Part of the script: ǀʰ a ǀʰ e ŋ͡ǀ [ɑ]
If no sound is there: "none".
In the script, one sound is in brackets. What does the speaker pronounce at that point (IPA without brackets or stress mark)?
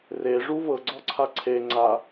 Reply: a